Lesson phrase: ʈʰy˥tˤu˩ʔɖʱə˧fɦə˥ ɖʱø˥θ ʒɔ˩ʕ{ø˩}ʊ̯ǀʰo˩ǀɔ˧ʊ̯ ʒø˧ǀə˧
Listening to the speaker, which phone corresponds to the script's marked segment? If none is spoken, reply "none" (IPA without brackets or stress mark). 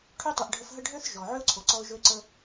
ø˥